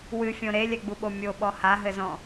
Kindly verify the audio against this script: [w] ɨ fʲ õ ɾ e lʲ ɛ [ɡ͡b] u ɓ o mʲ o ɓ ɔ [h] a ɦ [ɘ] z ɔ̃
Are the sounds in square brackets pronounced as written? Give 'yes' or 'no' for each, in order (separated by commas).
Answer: yes, yes, yes, yes